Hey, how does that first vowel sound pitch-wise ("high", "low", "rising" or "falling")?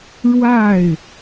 falling